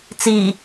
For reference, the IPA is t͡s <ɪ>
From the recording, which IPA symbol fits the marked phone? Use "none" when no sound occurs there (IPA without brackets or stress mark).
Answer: i